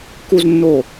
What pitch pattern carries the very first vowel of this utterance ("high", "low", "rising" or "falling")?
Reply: low